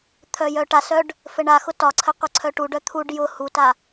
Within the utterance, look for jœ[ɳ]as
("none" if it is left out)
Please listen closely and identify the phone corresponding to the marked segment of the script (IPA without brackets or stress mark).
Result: ʈ